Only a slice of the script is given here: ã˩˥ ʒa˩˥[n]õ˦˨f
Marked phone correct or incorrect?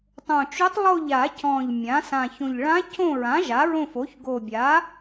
incorrect